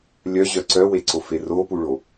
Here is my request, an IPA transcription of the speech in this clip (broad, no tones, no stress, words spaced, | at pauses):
lʲœʑœ ǀœweǀofe ropuɭo